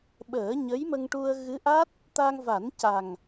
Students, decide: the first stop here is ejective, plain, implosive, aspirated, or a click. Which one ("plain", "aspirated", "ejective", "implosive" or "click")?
implosive